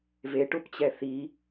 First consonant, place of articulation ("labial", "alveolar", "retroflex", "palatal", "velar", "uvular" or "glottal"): labial